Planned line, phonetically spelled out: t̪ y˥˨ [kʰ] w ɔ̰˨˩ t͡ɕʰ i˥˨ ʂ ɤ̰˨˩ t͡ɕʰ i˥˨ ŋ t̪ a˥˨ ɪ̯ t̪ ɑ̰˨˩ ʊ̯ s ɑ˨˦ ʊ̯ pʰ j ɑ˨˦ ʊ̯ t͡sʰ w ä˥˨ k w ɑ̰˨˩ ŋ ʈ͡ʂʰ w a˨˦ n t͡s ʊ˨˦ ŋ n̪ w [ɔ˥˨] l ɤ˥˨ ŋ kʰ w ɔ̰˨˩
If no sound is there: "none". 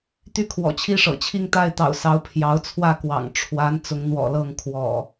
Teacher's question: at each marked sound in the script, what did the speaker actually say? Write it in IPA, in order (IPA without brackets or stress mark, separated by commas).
kʰ, ɔ̰˨˩